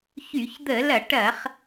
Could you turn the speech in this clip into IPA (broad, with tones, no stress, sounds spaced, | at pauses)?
ç y˧˩˧ ç d̪ ə˧˩˧ l ɐ˧˩˧ ʈ ɐ˧˩˧ χ